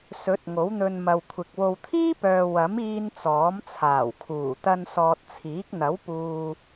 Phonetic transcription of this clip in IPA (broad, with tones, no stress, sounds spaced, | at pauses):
s ɵ˨˥ t̚ ŋ o˨˥ w n̪ ɵ˧ n m ɐ˨ w kʷʰ ɪ˨ k̚ w o˨ w t̪ʰ iː˥ p œː˨ w ɐ˨˥ m iː˧ n t͡s ɔː˨˥ m t͡sʰ aː˨˩ w kʰ uː˨˩ t̪ ɐ˧ n s ɔː˨ t̚ t͡sʰ iː˨˥ k̚ n̪ ɐ˨˥ w p uː˨